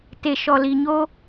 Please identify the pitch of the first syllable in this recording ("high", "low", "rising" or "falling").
low